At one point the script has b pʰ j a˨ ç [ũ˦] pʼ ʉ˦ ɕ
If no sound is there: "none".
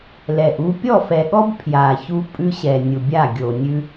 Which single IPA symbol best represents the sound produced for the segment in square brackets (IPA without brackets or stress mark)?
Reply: u˦